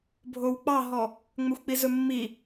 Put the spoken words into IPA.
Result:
bʱ o w k͡p ɑ ɦ ɔ | ŋ͡m ø xʷ k͡p i z ɵ mː i

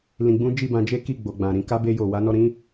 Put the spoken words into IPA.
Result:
l ĩ˧ ɡ͡b ũ˦ d͡ʒ i˦˨ b ã˧ d͡ʒ e˦ k i˦˨ ɡ͡b o˨ ɡ͡b ã˨ ɾ ĩ˨˦ k a˦ b e˧ j o˨ w a˨˦ n ɔ˧ ɾ ĩ˦

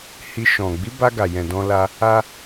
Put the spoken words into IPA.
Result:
h i˧ ʃ ɔ̃˨ ɡ͡b i˨˦ b a˧ ɡ a˨ j ɛ̃˨ d ɔ̃˧ l a˧ | a˦

